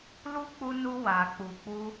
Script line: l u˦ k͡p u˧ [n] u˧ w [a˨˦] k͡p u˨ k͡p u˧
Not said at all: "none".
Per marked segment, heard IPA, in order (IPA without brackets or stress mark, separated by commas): n, a˨